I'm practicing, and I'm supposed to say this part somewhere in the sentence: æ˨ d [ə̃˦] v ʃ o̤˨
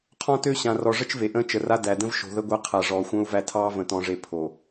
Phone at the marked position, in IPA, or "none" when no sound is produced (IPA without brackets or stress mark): ə̃˦